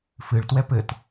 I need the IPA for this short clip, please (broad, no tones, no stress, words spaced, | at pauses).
fɨɭ twɛpɘt